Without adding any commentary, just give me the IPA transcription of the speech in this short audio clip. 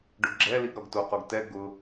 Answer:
ɖ ʊ ɡ ɡ͡ǁ ɛ l i ɡ ɾ ɔ ɡ t o q o ɡ t ɛ ɡ ʊ

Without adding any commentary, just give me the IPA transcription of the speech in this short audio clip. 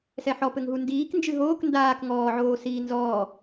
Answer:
s ɛ ħ ɔ p ɘ ŋ ɦ u n d iː k n d͡ʒ ɨ ɦ oː k n d aː k ŋ ɔː ʕ oː s iː n z ɔː

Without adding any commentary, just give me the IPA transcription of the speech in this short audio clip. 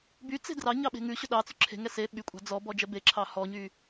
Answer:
b y t͡s e̤ d r ɑ ɲ ɑ ɓ e̤ ŋ ʉ ɕ ɵ ɗ ɑ t͡s ʉ ǁʰ e̤ ŋ ɛ s e ɓ y kʷʼ ɑ̤ d͡z ɔ b ɔ d͡ʒ ɛ b e ǁʰ ɑ h ɔ ɲ y

